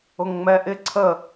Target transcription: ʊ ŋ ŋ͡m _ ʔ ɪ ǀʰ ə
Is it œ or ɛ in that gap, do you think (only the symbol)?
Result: ɛ